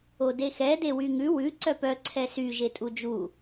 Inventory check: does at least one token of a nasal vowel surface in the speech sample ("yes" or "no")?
no